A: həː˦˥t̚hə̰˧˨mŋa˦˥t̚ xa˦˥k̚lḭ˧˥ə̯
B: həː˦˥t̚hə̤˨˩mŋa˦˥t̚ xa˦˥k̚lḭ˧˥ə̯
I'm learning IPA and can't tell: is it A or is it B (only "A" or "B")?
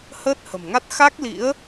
B